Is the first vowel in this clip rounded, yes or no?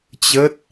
no